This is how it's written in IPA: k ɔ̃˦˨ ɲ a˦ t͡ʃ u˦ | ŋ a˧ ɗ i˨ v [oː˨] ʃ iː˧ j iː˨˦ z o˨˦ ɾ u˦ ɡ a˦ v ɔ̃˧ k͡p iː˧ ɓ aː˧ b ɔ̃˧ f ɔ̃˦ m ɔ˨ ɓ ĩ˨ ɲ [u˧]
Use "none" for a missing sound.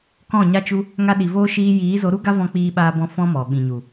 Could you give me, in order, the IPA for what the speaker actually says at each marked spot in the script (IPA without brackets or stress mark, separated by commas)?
oː˧, u˨